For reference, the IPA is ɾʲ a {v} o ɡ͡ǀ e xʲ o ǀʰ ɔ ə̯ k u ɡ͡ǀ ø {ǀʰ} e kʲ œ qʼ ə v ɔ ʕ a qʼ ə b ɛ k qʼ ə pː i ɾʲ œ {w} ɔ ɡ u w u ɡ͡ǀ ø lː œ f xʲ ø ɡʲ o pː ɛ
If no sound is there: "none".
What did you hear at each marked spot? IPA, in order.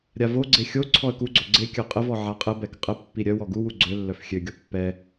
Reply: v, ɡ͡ǀ, w

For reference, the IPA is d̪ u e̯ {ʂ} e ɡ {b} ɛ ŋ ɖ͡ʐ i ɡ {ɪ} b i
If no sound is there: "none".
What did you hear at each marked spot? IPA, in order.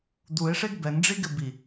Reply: ʂ, b, ɪ

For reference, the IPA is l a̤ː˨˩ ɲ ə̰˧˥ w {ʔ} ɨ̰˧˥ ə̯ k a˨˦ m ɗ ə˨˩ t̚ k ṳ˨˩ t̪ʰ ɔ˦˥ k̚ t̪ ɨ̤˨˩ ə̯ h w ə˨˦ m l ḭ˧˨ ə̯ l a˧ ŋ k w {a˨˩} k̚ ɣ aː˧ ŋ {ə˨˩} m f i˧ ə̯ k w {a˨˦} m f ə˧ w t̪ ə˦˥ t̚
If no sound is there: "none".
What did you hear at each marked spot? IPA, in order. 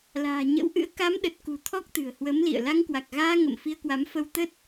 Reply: ʔ, a˨˩, ə̰˧˨, a˨˦

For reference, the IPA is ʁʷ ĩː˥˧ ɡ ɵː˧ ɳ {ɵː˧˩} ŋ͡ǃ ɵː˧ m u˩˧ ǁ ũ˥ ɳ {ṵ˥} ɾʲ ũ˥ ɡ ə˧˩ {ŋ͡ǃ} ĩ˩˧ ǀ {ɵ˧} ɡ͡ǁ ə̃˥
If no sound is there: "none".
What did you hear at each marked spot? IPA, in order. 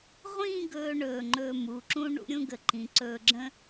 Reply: ɵː˧˩, ṵ˥, ǃ, ɵː˧

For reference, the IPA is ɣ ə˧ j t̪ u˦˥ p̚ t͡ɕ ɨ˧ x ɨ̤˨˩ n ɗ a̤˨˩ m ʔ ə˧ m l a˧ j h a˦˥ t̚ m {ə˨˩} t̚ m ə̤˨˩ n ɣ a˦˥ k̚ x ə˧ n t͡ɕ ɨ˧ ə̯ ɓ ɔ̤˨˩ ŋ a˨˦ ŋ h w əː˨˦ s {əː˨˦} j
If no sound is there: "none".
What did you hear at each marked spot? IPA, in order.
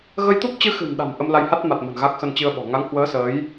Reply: a˨˩, əː˨˦

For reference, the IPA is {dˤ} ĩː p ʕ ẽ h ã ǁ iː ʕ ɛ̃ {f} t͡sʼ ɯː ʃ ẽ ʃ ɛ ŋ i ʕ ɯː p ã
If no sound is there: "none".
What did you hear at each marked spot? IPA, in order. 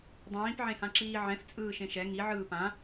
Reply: dˤ, f

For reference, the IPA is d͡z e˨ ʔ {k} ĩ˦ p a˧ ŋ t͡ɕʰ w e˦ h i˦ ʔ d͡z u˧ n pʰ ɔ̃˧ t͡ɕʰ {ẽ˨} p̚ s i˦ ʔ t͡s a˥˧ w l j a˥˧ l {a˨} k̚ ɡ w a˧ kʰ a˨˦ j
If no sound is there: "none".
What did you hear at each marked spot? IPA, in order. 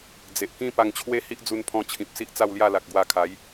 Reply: k, ĩ˨, a˨

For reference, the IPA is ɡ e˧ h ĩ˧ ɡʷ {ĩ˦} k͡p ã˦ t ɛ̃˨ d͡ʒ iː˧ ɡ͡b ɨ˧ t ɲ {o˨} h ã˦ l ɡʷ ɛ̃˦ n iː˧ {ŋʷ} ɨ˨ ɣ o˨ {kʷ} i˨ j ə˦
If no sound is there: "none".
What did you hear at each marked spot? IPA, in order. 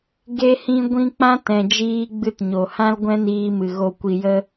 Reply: ĩ˦, o˨, m, kʷ

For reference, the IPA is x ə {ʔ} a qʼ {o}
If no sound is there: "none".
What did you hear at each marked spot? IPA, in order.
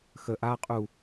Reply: ʔ, u

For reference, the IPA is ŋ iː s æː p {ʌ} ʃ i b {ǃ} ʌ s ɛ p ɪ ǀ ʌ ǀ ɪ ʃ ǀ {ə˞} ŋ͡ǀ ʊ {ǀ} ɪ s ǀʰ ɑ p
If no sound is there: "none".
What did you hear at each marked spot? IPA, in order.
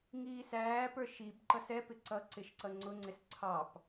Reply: ə˞, ǃ, ʌ, ŋ͡ǀ

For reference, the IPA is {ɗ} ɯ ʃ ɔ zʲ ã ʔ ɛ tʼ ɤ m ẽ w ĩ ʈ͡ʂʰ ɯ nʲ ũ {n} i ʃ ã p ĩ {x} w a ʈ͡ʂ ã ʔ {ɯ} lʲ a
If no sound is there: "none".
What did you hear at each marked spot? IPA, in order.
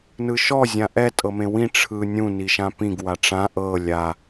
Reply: n, n, ɡ, ɤ

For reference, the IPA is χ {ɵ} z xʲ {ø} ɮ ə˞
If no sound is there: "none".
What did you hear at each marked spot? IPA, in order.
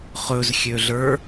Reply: ɵ, ø

